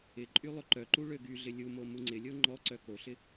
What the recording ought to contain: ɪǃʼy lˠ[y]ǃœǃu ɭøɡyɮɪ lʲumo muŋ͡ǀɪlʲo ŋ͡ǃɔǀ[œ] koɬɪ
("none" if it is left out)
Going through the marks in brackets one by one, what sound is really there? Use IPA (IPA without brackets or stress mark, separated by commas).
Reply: ʏ, œ